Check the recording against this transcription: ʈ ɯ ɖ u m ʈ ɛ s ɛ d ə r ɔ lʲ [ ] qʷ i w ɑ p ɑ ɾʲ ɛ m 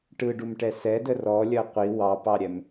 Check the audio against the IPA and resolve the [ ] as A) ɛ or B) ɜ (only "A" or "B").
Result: B